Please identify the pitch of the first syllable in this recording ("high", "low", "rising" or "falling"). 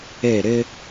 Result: falling